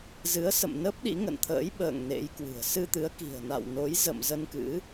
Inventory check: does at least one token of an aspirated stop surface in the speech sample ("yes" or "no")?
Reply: yes